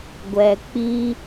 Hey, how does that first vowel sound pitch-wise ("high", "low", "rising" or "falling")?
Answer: low